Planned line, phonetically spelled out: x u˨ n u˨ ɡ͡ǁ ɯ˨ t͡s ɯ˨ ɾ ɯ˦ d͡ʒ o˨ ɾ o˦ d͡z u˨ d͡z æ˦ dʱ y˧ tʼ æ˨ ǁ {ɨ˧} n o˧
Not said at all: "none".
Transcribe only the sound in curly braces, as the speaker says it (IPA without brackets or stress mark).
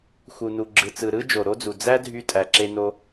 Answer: e˧